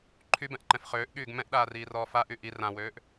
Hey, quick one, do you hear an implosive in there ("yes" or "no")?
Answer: yes